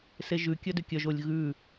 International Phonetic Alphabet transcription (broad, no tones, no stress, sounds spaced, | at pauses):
s e ʒ ʉ kʲ œ d ʏ kʲ œ ʒ o lʲ ɣ ʉ